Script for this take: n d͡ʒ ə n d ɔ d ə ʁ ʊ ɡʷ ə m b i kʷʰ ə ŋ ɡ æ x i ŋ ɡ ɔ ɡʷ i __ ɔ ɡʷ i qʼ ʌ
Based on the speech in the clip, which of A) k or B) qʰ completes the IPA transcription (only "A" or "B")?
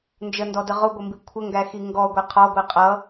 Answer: B